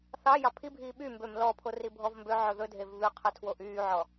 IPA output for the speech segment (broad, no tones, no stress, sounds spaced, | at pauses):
θ ɑ j ɑ pʰ i bʱ iː ɓ y m b ø m l ɔ pʰ o r i bʱ ɔ v m b ø ʕ ɵ ð ɵ dʱ e v β ʉ qʰ ø tʰ w o ʔ yː ʕ ɔ